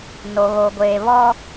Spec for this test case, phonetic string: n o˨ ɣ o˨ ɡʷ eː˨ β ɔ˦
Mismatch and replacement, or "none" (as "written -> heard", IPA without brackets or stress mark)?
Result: none